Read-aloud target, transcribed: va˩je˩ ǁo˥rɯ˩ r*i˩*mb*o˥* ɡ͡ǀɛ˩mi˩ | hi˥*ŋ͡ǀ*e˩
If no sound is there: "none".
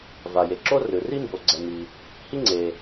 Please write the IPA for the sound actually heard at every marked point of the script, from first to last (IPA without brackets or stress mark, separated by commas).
i˥, o˩, ŋ͡ǀ